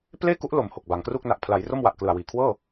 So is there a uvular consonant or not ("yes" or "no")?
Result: no